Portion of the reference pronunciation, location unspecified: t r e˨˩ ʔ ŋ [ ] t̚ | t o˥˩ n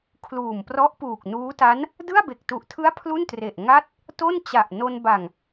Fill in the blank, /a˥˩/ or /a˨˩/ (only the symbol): a˥˩